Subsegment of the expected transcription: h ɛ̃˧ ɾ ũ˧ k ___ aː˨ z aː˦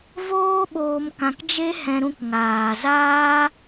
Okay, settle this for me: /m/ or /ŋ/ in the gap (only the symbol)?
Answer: ŋ